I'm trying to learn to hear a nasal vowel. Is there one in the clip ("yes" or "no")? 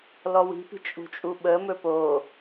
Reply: no